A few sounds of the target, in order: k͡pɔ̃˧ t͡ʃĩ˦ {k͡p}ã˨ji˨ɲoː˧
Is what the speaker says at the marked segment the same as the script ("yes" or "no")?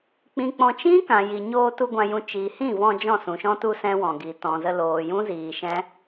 no